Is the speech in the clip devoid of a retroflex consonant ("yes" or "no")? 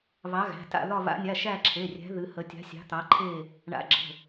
no